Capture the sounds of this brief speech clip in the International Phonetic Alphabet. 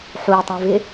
ħujtˤĩvɪ

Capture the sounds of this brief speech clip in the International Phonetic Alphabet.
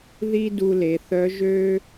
ði˥ du˧le˩˧θœ˧˥ʒø˥

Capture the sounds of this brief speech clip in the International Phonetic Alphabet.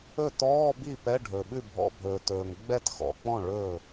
ɵ˥˩tɔː˧˥˧bi˥˩ pɛ˧˥˧ɖʱɵ˩ ɓʉ˥˩bʱɔ̰˧˥˧bʱɵː˩ tɵː˩ŋ ɡ͡bɛ˥˩txɔ̰˩k͡pɔ̃˥˩ ɭɵ˥˩

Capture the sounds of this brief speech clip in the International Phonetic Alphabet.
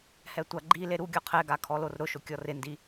hɛtʷaɡ͡ǃile ɾuɡʲɔ qʰɛɡa kʰɔlorɾʊʃʊ kʲɔrɪndi

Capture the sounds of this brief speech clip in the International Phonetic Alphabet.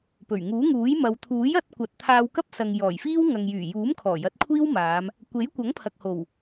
pɵ˨˩ɥŋuː˨˥ŋuː˨˥jmɐ˨˧w t̪ʰuː˨˥jɐ˨˥t̚kʷɐ˨t̚t̪ʰaː˧w kɐ˥p̚sɐ˨ŋ jɔː˨˩jfiː˥w ŋɐ˨ŋjyː˨˩ juː˨˥m kʰɔː˨˩jɐ˨˥t̚kʷʰiː˥wmaː˨˧m | kʷe˨˥jkʷɐ˨˥ŋpʰɐ˨k̚ho˨˩w

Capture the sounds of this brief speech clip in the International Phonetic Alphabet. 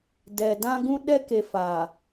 dɛ˨dã˦ ɡũ˦ ɗɛ˦ke˨faː˨

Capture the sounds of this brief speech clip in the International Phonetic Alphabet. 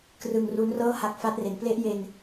krɯ˧ŋru˦˥n rɤː˥˩ha˦˥k̚ fa˦˥t̚ re˩˦nple˦˥ʔ je˧n

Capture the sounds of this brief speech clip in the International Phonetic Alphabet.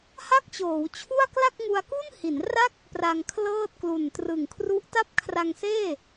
ha˥˩k̚t͡ɕoː˩˦wt͡ɕʰu˥˩a̯ kla˥˩k̚ŋu˧a̯ku˥˩n hi˩˦nra˥˩k̚ | pra˧ŋkʰlɤː˥˩t̚ klu˨˩ntrɯ˨˩ŋ kʰru˦˥ʔta˥˩p̚kʰra˧ŋseː˥˩

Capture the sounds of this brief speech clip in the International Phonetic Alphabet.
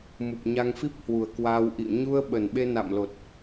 mu˨˩p̚ɲa˧ŋfi˦˥p̚ hwu˨˩ə̯kwaː˧wʔḭ˧˨ə̯ ɲu˧ə̯ ɓə˨˩nɓe˧na̰˧˨mlo˨˩t̚

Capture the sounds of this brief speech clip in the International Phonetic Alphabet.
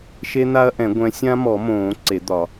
ʃe˦˥n̪a˦˥ɐ̯ʔɛ̃˨˩˦ ɡʷɛ̃˨˦sʲã˦˥mɔ˨˩˦mõː˨˩˦ ǀe˨˩˦d̪ɒ˨˩˦

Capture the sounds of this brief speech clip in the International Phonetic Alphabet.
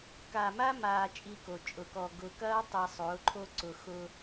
ka˨ma˦ maː˦t͡ʃʼi˦ko˨ t͡ʃʼʊ˨kɔ˨ ɡʊ˨kɐː˦ tˤi˨sˤʊː˨˦ǃʰo˦ǀʊ˨ xʊ˦

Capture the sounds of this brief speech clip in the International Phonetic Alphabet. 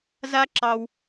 za˦ ǁɑ˦w

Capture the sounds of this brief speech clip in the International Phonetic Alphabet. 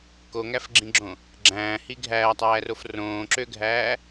koŋæfɡ͡ǁĩɡ͡ǁõ | ɡ͡ǁæ̃ːhi ɡʱæːtˤæːrof rõːǁøɡʱæː

